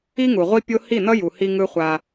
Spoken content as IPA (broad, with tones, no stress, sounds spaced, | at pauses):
i˦ ŋ u˨ ʁʷ i˦ pʲ o˦ h i˦˨ n ʌ˦ j u˨ h i˦ ŋ ɯ˦ χʷ a˦